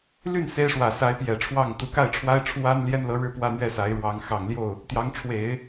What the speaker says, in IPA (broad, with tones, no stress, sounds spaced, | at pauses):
l y˥˩ n s e˥ ɪ̯ ʂ w ä˨˩ s a˧˥ ɪ̯ p j ɛ˨˩ ʈ͡ʂʰ w ɑ˥˩ ŋ t̪ u˧˥ k a˥˩ ɪ̯ ʈ͡ʂʰ w a˥ ɪ̯ ʈ͡ʂʰ w a˥ n l j ɛ˥ n l ɤ˧˥ ɻ ɻ̩˥˧ p w ä˥˧ n̪ ɥ ɛ˥˩ s a˧˥ ɪ̯ ɻ w ɑ˧˥ ŋ x ɑ˨˩ ŋ l j o˥˩ ʊ̯ | t̪ j ɑ˧˥ ŋ ʈ͡ʂʰ w e˨˩˦ ɪ̯